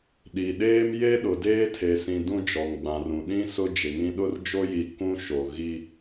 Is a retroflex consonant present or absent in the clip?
absent